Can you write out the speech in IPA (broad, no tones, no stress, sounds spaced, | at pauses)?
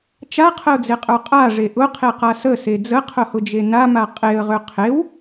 t͡ʃ a qʰ ə ʊ̯ d͡z e qʼ ə˞ qʼ a ʐ e ʔ ʊ qʰ e q a s ə s e d͡z ə qʰ ʊ h ʊ d͡ʒ e n a m a qʼ e ə̯ ʁ ø qʰ e w